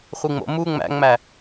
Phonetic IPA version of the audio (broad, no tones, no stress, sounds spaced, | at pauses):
χʷ i ŋ͡m o̰ m u ŋ͡m æ̰ ŋ͡m æ